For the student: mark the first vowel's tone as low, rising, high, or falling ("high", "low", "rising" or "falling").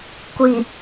low